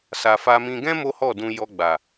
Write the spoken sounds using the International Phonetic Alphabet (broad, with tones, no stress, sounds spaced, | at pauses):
s a˨ f a˧ m ĩ˧ ɡ ɛ̃˦ m o˦ h ɔ˦˨ d ũ˧ j ɔ˧ ɡ͡b a˨